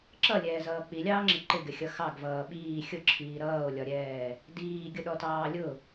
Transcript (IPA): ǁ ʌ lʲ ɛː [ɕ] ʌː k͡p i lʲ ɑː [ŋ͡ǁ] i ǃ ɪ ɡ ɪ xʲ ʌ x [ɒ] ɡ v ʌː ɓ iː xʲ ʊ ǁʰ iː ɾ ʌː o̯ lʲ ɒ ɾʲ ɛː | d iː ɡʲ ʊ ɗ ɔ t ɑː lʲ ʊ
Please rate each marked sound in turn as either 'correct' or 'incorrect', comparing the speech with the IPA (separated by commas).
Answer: incorrect, correct, incorrect